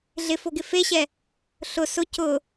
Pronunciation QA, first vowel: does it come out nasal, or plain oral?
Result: oral